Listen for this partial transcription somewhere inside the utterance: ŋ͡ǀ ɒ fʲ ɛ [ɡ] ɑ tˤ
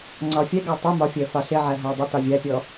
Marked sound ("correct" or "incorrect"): correct